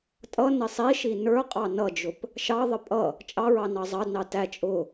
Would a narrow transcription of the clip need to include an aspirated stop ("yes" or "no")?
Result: no